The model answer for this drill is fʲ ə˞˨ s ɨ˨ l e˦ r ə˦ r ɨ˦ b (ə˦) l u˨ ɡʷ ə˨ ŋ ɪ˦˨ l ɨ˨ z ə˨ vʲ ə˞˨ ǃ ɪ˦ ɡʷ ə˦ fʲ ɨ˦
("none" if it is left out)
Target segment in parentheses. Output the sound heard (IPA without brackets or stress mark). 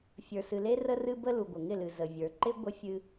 ə˦